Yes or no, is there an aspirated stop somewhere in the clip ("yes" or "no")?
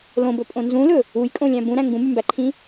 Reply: yes